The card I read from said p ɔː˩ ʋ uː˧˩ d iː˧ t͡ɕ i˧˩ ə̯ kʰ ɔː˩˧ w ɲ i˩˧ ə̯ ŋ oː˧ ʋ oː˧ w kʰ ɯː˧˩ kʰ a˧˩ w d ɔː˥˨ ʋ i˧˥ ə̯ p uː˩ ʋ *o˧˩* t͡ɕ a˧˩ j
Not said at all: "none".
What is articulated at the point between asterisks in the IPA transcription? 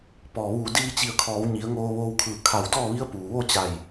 o˥˨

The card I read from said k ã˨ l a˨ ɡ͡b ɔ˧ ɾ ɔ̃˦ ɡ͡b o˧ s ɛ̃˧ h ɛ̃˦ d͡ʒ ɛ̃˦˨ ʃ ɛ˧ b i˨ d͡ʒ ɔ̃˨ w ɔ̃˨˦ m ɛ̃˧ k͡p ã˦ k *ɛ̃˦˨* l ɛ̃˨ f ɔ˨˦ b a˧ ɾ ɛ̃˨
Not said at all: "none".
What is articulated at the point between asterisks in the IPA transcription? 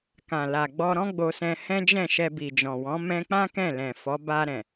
ɛ̃˦˨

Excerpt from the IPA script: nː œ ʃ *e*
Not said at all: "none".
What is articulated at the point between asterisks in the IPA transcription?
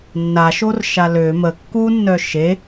e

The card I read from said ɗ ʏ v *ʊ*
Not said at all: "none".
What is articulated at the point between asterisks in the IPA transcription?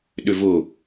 ʊ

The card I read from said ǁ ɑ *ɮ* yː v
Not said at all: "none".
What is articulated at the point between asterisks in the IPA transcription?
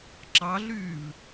ɮ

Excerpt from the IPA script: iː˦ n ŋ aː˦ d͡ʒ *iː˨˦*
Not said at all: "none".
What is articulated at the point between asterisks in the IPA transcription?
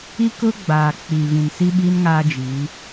iː˨˦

